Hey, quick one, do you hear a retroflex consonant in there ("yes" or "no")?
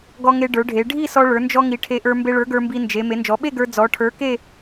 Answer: yes